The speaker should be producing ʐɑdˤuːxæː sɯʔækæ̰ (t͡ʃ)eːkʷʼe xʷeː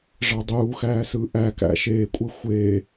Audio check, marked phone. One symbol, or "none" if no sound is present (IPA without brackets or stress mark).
ʃ